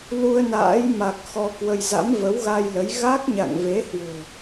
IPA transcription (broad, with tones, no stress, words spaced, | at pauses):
lu˧ə̯na̰ː˧˥jma˨˩k̚ xɔ˧kwə˧j za̰˧˥mvə˨˦wɣa˧jlə˨˦j ɣa˦˥k̚ɲa̰˧˨ŋve˨˦ hwo̤˨˩